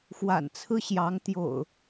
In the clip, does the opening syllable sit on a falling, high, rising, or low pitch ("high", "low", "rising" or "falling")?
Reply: low